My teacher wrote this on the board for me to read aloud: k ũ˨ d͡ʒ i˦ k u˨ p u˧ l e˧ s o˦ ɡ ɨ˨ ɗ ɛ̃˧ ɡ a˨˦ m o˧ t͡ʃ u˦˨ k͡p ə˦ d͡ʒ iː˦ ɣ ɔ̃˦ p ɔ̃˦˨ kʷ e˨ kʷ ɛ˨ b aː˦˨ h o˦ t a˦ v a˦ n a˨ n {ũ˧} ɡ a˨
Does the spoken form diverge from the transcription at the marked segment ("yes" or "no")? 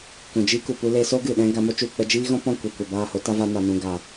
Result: yes